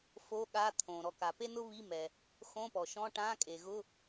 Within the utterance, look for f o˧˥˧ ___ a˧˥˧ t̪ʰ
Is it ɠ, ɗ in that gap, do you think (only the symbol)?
ɠ